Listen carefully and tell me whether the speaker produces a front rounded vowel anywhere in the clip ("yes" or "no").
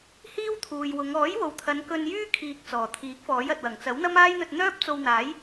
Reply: yes